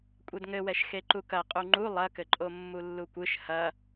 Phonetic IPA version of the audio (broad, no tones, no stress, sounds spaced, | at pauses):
kʷʼ ɛ d ŋ ɘ w ɛ ʃ x e ǃ u k ɐ qʼ u ŋ͡ǃ u lˠ ɐ k ɘ ǃʼ o mː u lː u kʷ ɨ ʃ h ɐ